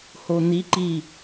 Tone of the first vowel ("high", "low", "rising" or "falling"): low